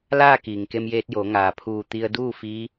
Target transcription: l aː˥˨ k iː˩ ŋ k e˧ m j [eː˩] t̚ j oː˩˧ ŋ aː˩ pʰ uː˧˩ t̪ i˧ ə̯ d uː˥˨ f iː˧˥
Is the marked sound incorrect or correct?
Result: incorrect